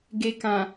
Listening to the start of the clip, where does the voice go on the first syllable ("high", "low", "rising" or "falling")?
low